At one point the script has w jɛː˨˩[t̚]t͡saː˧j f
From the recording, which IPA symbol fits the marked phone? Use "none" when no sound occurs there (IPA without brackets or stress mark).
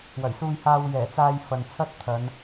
none